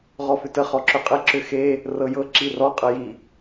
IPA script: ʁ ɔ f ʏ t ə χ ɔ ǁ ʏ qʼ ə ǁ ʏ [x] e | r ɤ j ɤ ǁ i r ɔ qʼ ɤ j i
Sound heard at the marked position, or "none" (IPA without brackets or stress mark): x